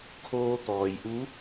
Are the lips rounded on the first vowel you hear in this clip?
yes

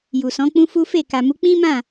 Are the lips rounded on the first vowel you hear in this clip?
yes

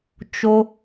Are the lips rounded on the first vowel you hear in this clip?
yes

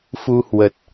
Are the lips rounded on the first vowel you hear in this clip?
yes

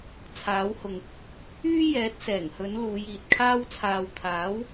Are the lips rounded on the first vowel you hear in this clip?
no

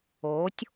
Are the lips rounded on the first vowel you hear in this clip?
yes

